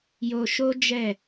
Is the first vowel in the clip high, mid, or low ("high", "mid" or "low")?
mid